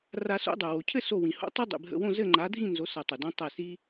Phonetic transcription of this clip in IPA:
r a˨˩˦ s o̰˨˩˦ dˤ o˩ w o˩ cʰ ɘ˥˨ s o˧˩ w ĩ˩ h o̰˨˥ tˤ ɐ˦ dˤ ḭ˩ bʱ ə̰˧˩ w õ˥˨ z ɘ˥˨ ŋ͡ǃ a˨˥ dʱ ĩ˥˨ n z o˨˥ s ɐ˨˩˦ tˤ ə˩ d õ˦ tˤ ɛ˧˩ s i˦

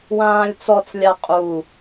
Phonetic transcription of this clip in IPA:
w ãː lʲ t͡s ɔ t͡s lʲ a qʼ u

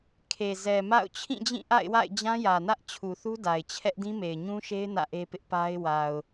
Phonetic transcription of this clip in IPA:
kʰ e˨ z ɛ˨ m a̰˦˨ ʊ̯ t͡ɕʰ ĩ˦˨ d͡ʑ ĩ˦˨ ʔ a̰˦˨ ɪ̯ w a̰˦˨ ɪ̯ d͡ʑ ã˦ j ä˨ n ä˦ ʔ t͡ɕʰ u˨ θ u˦ d a˨ ɪ̯ t͡ɕʰ ɛ˦ ʔ d ĩ˦ m e˨ ɪ̯ ɲ ũ˦ ʃ e˦ ɪ̯ n ä̰˦˨ ʔ e˦ p ɪ˦ ʔ p a˦ ɪ̯ w a˨ ʊ̯

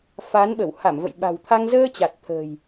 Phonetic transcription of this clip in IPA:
f a˨˦ n ɓ ə˧˩ w h a˧˩ m v ə̰˧˨ j ɓ a̤˨˩ w t̪ʰ a˧ ŋ z əː˧ t͡ɕ a˨˩ t̚ t̪ʰ ə̤ː˨˩ j

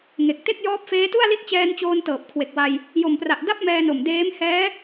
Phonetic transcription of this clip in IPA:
ŋ e˨˩ k̚ t e˥˩ k̚ j ɔː˦˥ p̚ f eː˦˥ t u˥˩ a̯ l i˦˥ t̚ t͡ɕ ɛː˧ n t͡ɕ oː˧ n t ɤː˨˩ p̚ kʰ w e˨˩ k̚ w a˧ j | j o˨˩ m p r a˨˩ ʔ d a˥˩ p̚ m ɛː˧ n o˨˩ m d eː˦˥ m h ɛː˦˥

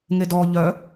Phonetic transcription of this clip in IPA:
ŋ e d ɔ ʎ œ

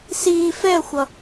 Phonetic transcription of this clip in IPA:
s iː f ɛ ə̯ xʷ ʌ

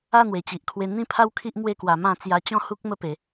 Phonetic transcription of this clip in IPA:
a˥˧ n̪ w e˨˩ t͡ɕ i˨ ʔ kʰ w e˧ n̪ ĩ˥˧ pʰ a˦ w kʰ i˦ ʔ m w e˥˧ k w a˧ m ã˥˧ t͡s j a˧ t͡ɕ ɔ̃˥˧ h u˦ k̚ m ə˦ p e˨˦

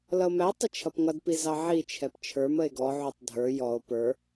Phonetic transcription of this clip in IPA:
l ʌ o̯ m æ tˤ ɪ t͡ʃʰ ʌ p ŋ ʌ d p i z ɑ ʕ i t͡ʃʰ ɛ p t͡ʃʰ ə˞ m ə e̯ ɡ ɔ ʕ u tˤ dʱ ə˞ j ɔ o̯ p ə˞

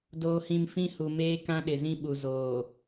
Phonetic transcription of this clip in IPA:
d oː˨ h ĩ˨ m f ĩ˦ h u˨ m eː˦ k ã˦ ɗ ɪ˨ z ĩ˦ ɓ u˨ z oː˨

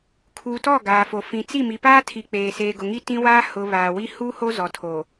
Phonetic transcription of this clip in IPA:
kʰ uː˨ t ɔ˦˨ ɡ aː˨ f o˨ f ĩ˨ t͡s i˦˨ m i˨ p aː˦ tʰ i˨ k͡p eː˨ s eː˨ ɡ ʊ˨ ŋ i˦ t ĩ˦ w aː˦ h ʊ˨ β aː˨ w i˦ h u˦ h o˦ z ɔ˨ tʰ o˨

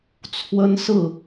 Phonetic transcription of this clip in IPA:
t͡sʰ w ə˦ n s ɹ̩˥˨

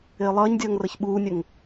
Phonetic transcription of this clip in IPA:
ɪː lˠ ʌː ɲ dʲ ʌː ŋ r ʌ ç ɓ uː nʲ ə ŋ

